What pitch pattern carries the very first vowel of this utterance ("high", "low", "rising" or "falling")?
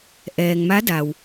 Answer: low